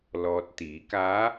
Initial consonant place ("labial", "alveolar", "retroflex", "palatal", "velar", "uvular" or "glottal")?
alveolar